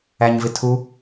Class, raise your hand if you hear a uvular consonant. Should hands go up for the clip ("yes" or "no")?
no